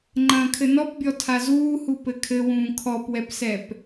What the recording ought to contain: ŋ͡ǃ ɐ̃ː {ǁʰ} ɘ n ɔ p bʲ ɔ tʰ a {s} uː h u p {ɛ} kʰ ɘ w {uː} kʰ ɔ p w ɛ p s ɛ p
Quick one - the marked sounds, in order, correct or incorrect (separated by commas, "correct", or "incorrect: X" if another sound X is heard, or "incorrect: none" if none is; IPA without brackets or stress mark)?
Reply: incorrect: kʰ, incorrect: z, incorrect: ɘ, incorrect: ũː